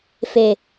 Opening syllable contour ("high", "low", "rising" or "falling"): low